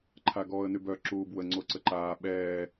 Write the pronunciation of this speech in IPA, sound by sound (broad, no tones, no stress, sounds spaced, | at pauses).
ǃʰ a ɡ ɔː ə̯ n y b œ ǁ uː b w ə ŋ͡ǀ o ǀ ə ǃ aː ɓ ɛː